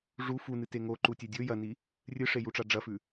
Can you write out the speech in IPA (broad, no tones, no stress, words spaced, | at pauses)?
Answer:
ʐu funɨte ŋoǃutʲe dʲɵ jɐni | rʲɨʂejuʈ͡ʂa ɖ͡ʐɐfʉ